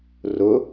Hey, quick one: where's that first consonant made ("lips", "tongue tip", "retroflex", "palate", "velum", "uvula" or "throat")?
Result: tongue tip